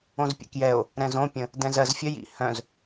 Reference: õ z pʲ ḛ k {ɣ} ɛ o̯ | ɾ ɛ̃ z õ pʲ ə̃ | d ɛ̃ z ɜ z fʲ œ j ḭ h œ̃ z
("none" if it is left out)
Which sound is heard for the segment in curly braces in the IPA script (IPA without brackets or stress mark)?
j